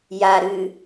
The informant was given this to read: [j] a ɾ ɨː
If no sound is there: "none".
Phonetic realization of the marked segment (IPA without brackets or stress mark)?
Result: j